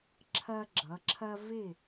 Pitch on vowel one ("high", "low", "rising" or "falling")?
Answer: high